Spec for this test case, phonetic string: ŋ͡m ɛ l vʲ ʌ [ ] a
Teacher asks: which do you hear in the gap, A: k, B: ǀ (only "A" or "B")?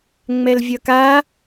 A